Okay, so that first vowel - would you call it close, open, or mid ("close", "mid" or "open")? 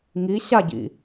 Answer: close